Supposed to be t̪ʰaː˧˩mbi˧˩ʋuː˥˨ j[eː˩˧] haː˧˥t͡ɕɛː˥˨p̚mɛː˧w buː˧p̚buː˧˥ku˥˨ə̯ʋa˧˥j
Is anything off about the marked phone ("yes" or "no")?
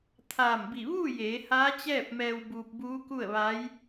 no